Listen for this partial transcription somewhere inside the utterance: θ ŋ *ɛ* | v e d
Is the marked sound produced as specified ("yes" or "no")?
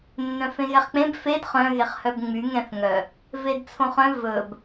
no